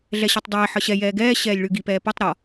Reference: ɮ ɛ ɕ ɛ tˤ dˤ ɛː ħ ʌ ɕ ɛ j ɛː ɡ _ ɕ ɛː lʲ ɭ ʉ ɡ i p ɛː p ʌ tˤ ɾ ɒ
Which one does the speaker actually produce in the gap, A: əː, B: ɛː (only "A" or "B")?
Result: B